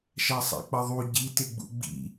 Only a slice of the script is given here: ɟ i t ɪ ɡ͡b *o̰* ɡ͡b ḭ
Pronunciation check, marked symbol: incorrect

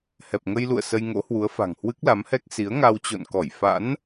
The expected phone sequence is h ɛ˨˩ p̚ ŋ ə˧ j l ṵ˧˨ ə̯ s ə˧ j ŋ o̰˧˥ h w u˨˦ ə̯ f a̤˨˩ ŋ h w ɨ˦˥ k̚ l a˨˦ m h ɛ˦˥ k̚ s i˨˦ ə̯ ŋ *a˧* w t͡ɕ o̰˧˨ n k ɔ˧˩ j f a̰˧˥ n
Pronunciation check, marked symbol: correct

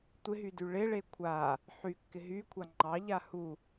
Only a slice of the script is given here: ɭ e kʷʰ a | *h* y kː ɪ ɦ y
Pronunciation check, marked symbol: incorrect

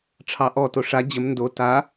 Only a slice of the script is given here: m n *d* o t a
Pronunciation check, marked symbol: correct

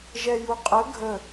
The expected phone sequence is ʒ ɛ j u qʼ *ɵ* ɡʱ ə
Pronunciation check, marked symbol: incorrect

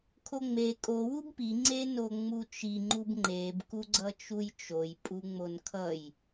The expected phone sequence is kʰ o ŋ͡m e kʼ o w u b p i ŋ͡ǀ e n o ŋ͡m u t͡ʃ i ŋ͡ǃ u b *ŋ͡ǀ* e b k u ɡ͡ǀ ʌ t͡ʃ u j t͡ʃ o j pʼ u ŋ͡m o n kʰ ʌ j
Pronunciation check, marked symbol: incorrect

